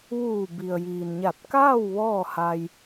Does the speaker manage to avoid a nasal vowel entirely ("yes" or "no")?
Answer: yes